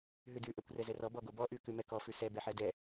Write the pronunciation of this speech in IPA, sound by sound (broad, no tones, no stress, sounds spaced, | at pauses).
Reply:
ɦ ʉ d ʉ ʔ ɛ kʷ r ɛ z ɛ r ɔ b ɔ ɡ o b ɔ ʔ ʉ k ʉ m ɛ k ɔ f ʉ s ɛ b ɛ ħ ɛ d ɛ